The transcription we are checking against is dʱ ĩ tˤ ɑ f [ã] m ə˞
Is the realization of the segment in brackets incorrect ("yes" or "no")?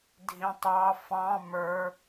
yes